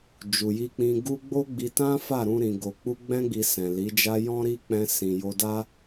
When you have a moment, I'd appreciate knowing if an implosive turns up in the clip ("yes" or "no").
no